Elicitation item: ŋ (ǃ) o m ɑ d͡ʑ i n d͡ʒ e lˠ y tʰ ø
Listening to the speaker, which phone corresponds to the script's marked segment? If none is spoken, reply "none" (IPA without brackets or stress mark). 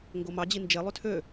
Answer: ɡ